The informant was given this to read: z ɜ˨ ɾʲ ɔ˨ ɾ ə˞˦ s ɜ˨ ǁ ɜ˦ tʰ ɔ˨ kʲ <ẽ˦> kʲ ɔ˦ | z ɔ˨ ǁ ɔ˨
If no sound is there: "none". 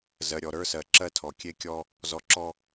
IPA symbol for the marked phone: e˦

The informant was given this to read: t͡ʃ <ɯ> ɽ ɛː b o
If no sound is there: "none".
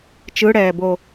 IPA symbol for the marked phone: ɯ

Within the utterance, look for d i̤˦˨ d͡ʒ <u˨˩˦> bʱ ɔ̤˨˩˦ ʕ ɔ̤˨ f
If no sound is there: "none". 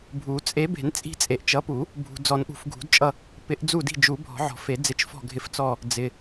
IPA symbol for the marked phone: u˨˩˦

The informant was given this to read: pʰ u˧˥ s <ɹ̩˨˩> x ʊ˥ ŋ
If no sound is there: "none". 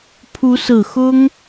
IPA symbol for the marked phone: ɹ̩˨˩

